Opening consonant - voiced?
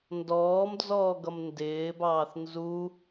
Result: yes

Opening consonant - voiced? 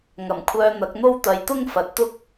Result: yes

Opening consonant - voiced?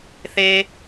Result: no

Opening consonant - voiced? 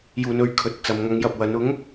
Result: yes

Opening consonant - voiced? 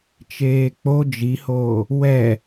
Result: no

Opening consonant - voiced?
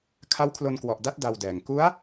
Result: no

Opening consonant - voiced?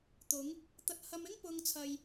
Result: no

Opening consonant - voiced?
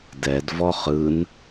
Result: yes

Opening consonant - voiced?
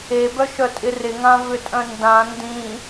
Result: yes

